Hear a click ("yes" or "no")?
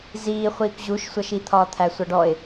no